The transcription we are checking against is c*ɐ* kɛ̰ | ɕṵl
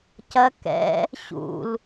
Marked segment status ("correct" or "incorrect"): correct